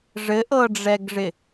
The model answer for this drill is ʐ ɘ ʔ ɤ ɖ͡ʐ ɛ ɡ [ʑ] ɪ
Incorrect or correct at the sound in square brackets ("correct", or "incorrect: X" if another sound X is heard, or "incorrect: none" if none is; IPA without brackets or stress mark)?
incorrect: ʐ